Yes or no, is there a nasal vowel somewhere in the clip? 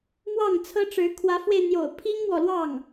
no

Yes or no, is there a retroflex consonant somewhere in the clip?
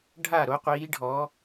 yes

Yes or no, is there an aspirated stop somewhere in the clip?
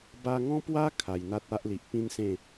yes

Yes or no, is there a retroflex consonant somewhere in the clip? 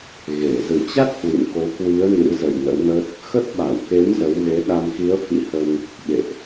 no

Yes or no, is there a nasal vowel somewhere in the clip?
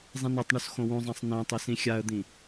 yes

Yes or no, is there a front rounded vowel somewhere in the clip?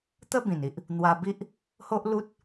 no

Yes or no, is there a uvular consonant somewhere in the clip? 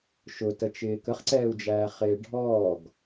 yes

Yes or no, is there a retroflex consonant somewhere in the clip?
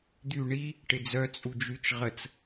yes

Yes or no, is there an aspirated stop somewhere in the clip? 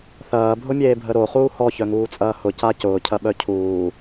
yes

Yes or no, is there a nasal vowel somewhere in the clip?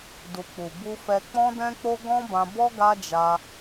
yes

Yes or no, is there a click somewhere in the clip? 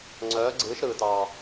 yes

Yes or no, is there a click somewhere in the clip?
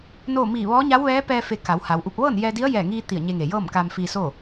no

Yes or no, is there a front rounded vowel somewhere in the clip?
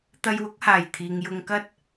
no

